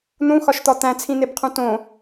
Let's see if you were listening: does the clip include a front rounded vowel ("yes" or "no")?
no